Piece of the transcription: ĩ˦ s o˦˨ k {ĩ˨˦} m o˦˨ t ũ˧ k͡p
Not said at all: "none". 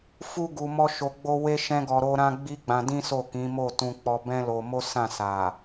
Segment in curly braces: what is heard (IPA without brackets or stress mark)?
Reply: ĩ˨˦